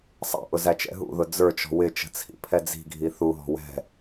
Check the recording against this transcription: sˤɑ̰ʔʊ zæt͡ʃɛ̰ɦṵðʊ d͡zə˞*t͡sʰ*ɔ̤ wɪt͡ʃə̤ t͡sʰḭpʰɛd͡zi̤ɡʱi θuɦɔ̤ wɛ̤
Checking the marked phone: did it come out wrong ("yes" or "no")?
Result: yes